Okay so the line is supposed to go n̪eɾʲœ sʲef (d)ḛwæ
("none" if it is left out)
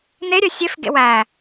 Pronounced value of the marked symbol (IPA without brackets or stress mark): ɡ